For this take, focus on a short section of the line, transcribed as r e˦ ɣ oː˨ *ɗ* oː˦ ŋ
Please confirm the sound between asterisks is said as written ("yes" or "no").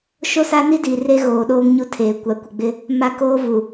yes